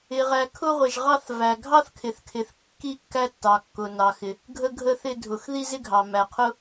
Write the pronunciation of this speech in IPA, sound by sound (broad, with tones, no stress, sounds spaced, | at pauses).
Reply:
ɪ˩ ʁ æ˩ kʰ ʊ˧ ʁʷ ɪ˩ ʒ ʁ ɑ˧ θ v æ˩ ɡʱ ɑ˧ θ kʰ ɪ˩ θ kʰ ɪ˩ θ kː i˧ kː æ˧ tː ɑ˩ kː ʊ˩ n ɑ˩ x ɪ˩ | ɡʱ ə˧ ɡʱ ə˧ θ ɪ˧ dʱ ʊ˩ x ð i˧ z ɪ˧ ɡʱ ɑ˩ m æ˩ qʰ ʊ˧